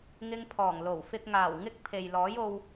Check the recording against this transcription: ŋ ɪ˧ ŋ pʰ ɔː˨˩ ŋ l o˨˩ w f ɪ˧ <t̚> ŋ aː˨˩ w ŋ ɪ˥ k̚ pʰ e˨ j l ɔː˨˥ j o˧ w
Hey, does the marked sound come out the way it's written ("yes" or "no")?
no